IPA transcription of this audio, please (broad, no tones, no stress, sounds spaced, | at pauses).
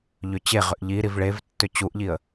ʎ ʏ t͡ɕ e ʁ ʏ ʔ ʎ i ɾ i v ɭ e v tː ʏ t͡ɕ u ʔ ʎ i ə̯